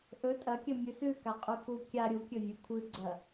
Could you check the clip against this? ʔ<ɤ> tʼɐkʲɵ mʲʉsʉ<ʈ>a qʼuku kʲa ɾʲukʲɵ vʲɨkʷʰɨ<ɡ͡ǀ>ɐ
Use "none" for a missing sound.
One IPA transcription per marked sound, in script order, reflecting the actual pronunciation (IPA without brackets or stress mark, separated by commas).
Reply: ɵ, k, ɡ͡ǀ